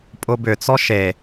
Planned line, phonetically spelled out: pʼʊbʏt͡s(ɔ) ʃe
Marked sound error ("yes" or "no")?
no